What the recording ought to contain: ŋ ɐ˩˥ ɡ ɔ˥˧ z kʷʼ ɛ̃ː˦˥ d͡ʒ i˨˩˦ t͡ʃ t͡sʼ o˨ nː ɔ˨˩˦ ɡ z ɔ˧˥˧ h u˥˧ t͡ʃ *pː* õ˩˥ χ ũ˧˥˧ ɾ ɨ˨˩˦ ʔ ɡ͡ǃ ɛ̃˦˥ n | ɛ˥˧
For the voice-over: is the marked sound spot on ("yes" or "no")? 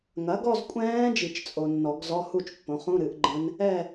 yes